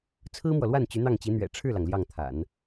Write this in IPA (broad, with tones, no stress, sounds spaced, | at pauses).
t͡sʰ ɹ̩˥ m w ɔ˨ l w a˥˩ n t͡ɕ y˧˥ n̪ ɑ˥˩ ŋ t͡ɕ i˧˥ n̪ ɥ ɛ̰˨˩ ʈ͡ʂʰ ɻ̩˥˩ l ɑ˩ ŋ l j ɑ˥˩ ŋ t̪ʰ a̰˨˩˦ n